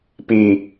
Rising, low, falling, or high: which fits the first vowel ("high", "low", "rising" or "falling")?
low